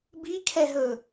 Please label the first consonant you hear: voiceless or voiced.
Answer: voiced